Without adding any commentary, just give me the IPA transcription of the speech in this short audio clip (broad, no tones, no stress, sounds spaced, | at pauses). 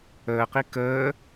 əː q i k əː